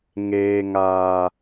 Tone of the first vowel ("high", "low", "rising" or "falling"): low